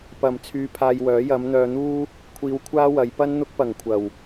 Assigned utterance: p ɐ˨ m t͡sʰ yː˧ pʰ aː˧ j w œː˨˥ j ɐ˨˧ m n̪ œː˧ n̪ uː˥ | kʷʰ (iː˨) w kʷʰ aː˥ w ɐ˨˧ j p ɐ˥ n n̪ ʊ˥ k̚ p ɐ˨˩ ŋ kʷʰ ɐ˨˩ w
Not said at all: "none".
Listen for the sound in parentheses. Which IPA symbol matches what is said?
iː˧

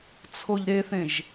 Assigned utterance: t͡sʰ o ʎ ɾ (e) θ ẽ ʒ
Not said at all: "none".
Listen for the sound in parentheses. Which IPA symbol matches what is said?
e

